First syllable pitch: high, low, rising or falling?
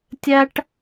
high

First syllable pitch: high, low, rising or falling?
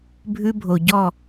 high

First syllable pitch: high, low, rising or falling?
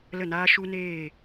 falling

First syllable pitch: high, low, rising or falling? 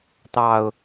low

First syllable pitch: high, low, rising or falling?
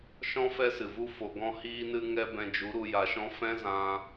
high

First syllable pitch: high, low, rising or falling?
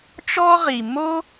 high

